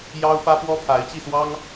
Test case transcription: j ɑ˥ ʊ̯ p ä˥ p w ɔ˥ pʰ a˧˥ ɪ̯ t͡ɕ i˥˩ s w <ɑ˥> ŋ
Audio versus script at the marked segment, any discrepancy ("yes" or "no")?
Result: no